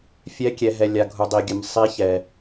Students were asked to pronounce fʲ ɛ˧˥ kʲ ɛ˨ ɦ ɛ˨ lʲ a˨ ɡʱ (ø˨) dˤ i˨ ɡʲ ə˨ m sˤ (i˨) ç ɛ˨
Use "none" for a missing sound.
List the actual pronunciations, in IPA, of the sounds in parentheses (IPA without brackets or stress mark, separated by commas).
u˨, i˧˥